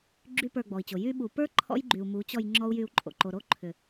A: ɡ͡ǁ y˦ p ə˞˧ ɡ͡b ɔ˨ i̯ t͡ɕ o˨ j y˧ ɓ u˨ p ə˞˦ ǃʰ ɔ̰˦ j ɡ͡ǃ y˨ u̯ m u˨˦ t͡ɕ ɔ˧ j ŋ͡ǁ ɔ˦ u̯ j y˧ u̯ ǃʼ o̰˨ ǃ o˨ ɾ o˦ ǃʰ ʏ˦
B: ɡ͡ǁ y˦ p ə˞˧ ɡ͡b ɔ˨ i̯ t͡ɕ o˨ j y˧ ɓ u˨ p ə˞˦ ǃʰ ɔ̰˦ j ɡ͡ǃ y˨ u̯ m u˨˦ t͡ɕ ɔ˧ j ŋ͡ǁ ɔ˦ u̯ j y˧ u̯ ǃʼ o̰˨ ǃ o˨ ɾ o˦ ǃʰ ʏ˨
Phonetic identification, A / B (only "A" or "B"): B